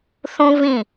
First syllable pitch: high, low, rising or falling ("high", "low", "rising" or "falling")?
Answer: high